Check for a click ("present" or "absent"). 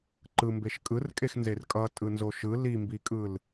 present